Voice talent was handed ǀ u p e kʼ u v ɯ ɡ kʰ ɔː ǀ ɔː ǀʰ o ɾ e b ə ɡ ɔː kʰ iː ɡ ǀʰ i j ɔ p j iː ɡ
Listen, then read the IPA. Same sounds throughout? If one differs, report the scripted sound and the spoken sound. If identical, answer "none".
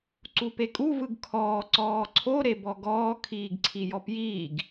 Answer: ə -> ɔ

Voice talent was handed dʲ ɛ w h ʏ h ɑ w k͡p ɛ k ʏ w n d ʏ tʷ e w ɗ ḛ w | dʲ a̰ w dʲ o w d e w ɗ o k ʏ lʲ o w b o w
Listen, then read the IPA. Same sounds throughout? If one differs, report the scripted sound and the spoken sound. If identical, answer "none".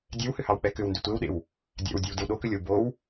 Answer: none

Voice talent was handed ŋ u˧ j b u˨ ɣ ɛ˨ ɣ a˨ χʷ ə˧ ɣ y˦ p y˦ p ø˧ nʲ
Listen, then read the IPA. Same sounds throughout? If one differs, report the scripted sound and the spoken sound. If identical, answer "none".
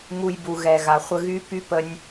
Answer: ø˧ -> ə˧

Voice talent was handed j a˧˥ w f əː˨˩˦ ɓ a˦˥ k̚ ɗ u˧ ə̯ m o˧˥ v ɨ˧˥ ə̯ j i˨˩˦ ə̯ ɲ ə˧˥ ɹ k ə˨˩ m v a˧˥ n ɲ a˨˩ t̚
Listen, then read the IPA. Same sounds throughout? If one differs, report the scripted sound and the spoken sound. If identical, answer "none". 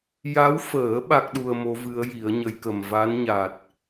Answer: ɹ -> j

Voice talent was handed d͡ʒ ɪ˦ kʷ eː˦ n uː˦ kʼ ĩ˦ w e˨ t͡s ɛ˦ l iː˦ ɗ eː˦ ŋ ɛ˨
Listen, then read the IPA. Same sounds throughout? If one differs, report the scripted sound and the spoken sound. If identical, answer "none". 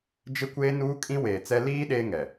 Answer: e˨ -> eː˨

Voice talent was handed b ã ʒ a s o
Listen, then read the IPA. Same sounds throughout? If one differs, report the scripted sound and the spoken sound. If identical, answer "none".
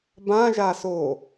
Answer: none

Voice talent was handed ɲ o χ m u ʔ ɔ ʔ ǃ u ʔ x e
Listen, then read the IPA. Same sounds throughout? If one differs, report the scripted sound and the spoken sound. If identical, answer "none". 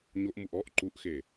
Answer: χ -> ʔ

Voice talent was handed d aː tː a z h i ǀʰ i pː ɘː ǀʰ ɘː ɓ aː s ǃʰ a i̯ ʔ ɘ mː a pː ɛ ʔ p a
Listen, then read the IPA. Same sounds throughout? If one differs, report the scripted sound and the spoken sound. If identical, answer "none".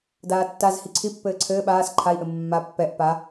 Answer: none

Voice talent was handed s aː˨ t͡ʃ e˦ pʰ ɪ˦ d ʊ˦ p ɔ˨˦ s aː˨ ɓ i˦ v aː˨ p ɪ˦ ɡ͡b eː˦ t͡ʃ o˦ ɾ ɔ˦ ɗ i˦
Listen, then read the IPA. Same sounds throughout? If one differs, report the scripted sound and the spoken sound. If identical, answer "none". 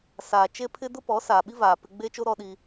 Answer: none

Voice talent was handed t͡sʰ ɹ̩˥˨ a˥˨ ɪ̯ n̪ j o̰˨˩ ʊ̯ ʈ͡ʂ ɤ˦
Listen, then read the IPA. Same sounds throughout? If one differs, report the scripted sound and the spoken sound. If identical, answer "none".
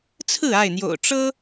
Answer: none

